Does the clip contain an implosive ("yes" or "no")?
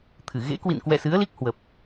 no